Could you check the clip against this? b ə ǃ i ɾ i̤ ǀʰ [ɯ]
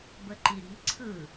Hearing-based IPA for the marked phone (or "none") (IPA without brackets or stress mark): ɯ